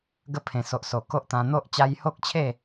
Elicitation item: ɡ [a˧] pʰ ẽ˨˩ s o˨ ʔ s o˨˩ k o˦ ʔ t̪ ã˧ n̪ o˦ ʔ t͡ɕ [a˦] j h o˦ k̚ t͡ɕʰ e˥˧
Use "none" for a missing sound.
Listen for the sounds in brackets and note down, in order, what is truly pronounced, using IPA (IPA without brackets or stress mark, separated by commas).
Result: ə˧, a˧